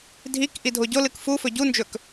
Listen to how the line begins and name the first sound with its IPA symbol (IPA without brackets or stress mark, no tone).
dʱ